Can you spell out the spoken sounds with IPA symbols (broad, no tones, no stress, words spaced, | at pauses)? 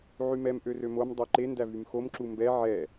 ʕymɛm ʔørømom dˤøǃe ndævymxom ǁumbɛ ʕɛ